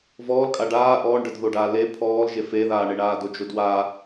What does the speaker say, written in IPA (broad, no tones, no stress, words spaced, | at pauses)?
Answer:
vɔːlkʼa ɖaː ʔɔːɳɖədðoɖaː le pʰɔːlʒe feðaːɳeɳaː dod͡ʒodwa